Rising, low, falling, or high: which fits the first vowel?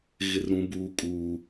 high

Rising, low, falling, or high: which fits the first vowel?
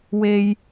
high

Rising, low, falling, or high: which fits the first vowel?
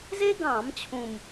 high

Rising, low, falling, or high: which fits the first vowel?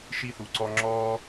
high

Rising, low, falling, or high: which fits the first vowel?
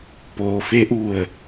low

